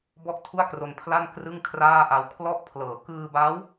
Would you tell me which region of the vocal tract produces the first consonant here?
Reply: lips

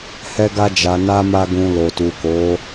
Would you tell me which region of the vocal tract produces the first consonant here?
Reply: throat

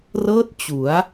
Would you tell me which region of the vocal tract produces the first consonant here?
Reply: tongue tip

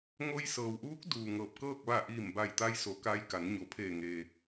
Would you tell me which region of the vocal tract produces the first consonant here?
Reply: velum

